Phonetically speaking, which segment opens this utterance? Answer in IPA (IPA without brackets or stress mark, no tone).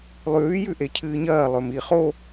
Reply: lˠ